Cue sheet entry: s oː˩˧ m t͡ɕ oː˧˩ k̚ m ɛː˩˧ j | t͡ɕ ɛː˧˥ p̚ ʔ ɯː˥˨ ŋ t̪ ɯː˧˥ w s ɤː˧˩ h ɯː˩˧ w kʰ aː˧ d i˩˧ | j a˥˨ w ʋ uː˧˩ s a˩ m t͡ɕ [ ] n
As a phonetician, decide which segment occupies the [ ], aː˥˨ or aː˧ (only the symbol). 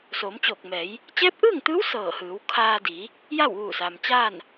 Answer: aː˥˨